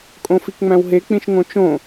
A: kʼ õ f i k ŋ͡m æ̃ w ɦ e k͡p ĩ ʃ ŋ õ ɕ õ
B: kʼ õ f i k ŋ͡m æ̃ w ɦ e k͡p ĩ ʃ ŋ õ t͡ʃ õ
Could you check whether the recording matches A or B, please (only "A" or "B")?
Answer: B